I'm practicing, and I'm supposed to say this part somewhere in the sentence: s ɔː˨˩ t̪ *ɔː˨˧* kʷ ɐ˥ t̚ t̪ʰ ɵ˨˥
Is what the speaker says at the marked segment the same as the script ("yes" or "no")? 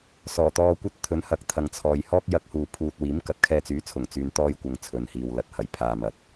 no